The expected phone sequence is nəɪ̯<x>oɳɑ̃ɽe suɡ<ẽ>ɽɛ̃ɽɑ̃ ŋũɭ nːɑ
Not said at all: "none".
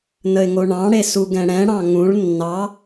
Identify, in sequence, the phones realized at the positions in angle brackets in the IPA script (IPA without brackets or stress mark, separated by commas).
ŋ, ɛ̃